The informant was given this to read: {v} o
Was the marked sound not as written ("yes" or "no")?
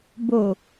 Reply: yes